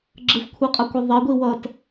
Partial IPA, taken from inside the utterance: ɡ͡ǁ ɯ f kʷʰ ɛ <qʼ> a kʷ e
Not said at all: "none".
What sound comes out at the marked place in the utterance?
qʼ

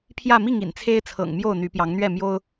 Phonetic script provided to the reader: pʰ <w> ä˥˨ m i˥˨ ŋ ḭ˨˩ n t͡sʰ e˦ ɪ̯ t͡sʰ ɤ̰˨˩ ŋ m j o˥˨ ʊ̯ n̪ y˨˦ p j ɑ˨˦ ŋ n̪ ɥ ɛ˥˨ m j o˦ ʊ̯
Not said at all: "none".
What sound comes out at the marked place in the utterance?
j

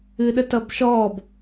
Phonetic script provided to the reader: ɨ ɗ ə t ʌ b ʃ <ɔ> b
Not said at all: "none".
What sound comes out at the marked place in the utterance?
ɔ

